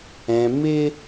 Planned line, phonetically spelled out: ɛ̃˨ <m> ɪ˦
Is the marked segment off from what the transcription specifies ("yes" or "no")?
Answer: no